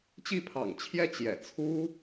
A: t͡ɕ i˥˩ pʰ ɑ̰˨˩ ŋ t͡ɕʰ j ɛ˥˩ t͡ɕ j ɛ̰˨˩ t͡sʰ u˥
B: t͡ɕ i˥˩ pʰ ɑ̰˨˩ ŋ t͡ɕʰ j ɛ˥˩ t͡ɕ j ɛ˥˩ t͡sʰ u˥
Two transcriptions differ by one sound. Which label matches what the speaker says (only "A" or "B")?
A